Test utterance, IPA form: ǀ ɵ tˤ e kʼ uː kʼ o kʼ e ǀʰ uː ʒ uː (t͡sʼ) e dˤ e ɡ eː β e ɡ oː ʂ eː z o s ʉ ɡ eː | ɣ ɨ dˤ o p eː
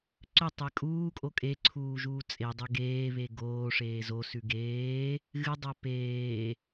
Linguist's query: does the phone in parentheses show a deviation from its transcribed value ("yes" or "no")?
no